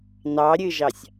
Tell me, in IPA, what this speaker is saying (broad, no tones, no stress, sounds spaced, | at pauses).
n ɑ ɾʲ ɨ ʒ ɑ sʲ